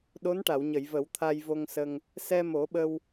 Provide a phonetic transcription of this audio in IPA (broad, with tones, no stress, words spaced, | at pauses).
ɗo˧˥nʈa˨˩˨wɲə˨˩˨j və˨˩˦wt̪ʰa˧jvo˧ŋsə˧ŋ | sɛ˧mo˨˩˦ɓə˧w